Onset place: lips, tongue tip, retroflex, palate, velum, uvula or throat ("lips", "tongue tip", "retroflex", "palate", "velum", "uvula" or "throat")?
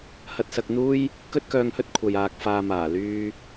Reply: throat